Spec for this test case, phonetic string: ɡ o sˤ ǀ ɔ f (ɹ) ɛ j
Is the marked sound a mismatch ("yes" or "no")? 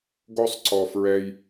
no